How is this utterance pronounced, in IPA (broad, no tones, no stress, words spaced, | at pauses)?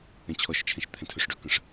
ɛ̃t͡ɕʰɔʃt͡ʃʰɛ̃ʃ t̪ʰɛ̃tʰɵʂɖɵkə̃ʂ